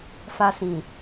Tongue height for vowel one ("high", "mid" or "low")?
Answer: low